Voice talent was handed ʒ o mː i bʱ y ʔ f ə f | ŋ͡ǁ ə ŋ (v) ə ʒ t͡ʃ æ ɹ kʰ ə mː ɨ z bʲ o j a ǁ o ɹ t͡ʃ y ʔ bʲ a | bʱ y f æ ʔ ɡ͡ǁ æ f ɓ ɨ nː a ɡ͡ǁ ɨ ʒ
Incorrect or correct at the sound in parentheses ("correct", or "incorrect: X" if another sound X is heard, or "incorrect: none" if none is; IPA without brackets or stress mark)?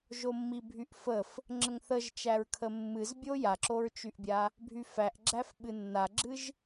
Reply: incorrect: θ